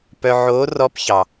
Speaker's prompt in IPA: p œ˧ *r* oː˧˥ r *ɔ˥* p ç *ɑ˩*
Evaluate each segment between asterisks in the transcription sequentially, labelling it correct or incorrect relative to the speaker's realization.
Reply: incorrect: ʕ, incorrect: ɔ˧˥, correct

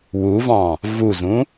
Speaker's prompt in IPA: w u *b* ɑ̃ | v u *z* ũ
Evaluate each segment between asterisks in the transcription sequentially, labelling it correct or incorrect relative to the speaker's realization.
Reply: incorrect: v, correct

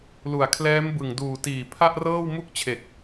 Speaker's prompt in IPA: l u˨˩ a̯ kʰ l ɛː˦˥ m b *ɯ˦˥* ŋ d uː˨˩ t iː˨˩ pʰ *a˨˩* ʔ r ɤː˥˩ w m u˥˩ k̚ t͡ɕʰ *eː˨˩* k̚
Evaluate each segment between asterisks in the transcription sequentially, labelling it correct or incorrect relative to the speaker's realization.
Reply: incorrect: ɯ˨˩, incorrect: a˥˩, incorrect: e˨˩

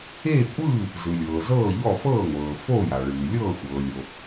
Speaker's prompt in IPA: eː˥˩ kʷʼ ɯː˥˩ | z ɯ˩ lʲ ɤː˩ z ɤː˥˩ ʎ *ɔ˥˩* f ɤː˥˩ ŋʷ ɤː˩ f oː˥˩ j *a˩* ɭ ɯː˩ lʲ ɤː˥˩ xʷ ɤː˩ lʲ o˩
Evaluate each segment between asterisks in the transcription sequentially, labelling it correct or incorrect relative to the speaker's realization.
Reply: correct, correct

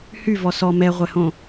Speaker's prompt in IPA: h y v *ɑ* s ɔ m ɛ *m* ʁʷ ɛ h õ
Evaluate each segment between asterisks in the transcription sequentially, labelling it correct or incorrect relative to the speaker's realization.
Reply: incorrect: ɔ, incorrect: none

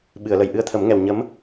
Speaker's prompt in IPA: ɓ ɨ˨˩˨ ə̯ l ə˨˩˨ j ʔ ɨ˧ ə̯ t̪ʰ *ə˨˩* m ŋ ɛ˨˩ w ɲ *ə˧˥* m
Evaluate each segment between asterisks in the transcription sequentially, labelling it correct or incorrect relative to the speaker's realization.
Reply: incorrect: ə˨˩˦, correct

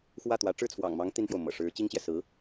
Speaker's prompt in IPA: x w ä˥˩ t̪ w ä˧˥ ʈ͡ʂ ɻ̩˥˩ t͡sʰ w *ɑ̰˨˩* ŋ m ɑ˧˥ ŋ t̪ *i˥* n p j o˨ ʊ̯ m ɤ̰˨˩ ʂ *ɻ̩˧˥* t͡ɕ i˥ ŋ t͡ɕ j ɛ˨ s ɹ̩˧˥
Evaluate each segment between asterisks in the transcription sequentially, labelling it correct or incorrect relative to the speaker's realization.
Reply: correct, correct, correct

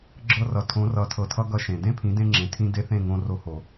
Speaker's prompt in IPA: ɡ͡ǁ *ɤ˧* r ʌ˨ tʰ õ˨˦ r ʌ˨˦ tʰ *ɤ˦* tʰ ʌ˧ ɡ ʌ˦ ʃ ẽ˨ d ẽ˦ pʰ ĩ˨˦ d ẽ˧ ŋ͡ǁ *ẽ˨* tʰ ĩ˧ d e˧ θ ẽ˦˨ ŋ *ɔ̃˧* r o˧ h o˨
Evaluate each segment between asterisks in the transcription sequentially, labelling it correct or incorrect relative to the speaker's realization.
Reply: correct, incorrect: ɤ˨, correct, incorrect: õ˧

